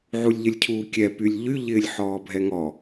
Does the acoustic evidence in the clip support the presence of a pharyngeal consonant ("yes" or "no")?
yes